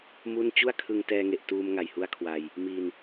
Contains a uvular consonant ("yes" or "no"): no